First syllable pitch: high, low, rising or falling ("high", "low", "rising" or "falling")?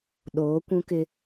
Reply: rising